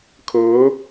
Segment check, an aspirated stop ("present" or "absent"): present